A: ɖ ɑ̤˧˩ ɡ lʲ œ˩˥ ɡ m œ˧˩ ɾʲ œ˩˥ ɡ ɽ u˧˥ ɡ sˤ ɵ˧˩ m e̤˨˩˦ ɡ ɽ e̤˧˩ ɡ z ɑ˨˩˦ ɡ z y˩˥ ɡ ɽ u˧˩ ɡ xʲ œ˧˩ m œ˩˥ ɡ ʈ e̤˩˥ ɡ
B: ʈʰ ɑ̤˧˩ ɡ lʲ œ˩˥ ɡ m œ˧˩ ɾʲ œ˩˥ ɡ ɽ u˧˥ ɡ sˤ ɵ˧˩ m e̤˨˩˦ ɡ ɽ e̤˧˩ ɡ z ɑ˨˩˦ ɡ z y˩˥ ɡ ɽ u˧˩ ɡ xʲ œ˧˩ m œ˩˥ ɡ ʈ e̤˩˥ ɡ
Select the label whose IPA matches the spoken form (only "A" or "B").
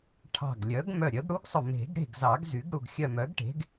B